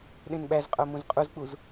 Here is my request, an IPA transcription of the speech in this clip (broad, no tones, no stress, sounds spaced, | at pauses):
ɗ ẽ n ɓ æ z qʼ o m ũ z qʼ u z k͡p u z